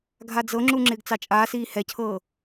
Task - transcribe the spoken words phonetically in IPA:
ɡʱ a d͡z ɤ ŋ͡ǁ u ŋ͡ǁ ɪː ɡ t͡s ɑ t͡ʃʼ aː s iː h ɛ cʰ ɤː

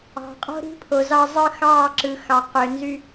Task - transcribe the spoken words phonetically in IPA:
ɑ̤˨ qʼ o̤˦ ɾ i̤˦ pʰ o˨ z ɑ˦ zˤ ɯ˦ x ɑː˦˨ ǁ ɯ˨ x ɑ˨ q ø˨ n z y˦

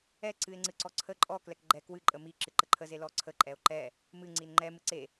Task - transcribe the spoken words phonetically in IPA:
ɛ ǀ ɨ e̯ ŋ͡ǀ ɨ ǀ ɔ ǀʰ ə ǃʼ ɔ k l ɛ k ɡ͡ǃ ɛ k w ɨ ǃʼ ə m i ǁ ɨ ǃ ə ǃʰ ə z e l ɔ ǀʰ ə ǃʼ ɛ o̯ ǃ ɛ | m ɨ ŋ͡ǀ i n ŋ͡ǃ ɛ m ɨ ǀ e

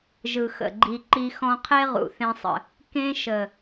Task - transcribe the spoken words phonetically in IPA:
ʒ ɯ˨ x ə̰˨ ɡ͡ǃ i˧ ǃ i˧ x ɔ̃˧ qʰ e˦ ʁ ṵ˨ θ ẽ˧ sˤ ə̰˨ | k ẽ˦ ʃ ə˨

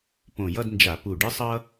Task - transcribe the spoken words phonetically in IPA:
p õ˧˩ j ʌ˥˧ d n d͡ʒ a˧˩˧ p u˧˩ ɖ ɯ˥ sˤ ʌ˥

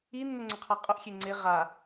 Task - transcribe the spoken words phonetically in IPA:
i nː ʊ ŋ͡ǀ ʊ qʰ a qʼ ʊ ʔ xʲ e ŋ͡ǀ e ʁ a

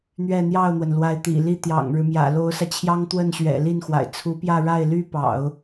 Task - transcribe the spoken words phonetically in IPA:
n̪ ɥ ɛ˥˧ n̪ j ɑ˥˩ ʊ̯ n̪ w ə˩ n l w a˧˥ ɪ̯ t̪ ḭ˨˩ l i˥ t̪ j ɑ̰˨˩ ŋ ɻ ɻ̩˦ m j ä̰˨˩ l o˧˥ ʊ̯ s ä˧ t͡ɕʰ j ɑ˥ ŋ t̪ w ə˥˩ n ɕ ɥ ɛ̰˨˩ l i˥˩ n x w a̰˨˩ ɪ̯ t͡sʰ u˧˥ p j ä˥˧ ɻ a˥˩ ɪ̯ l y˥ p ɑ̰˨˩˦ ʊ̯

